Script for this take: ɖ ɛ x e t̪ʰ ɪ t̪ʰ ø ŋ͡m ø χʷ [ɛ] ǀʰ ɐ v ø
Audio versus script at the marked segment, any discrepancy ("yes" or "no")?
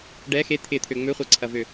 no